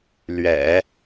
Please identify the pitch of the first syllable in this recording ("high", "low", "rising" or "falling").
low